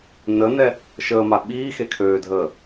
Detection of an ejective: absent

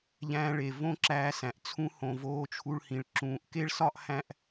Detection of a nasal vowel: present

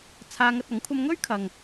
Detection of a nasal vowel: absent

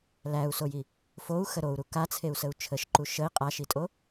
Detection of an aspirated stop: present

